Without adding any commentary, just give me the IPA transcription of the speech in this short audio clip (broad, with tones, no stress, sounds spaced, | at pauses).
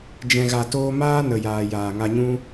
d͡ʒ ɛ̃˨ ɣ a˨ t oː˧ m aː˦ n ə˨ j aː˨ j aː˨ ŋ a˧ ɲ ũ˦